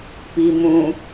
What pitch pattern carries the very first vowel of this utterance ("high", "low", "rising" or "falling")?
low